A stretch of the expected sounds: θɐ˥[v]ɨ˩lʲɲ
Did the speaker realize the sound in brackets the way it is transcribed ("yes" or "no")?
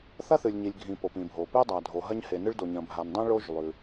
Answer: no